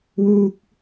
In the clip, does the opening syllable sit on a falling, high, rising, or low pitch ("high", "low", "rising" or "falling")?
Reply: high